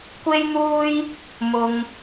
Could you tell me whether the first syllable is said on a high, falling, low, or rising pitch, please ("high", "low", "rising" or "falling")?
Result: high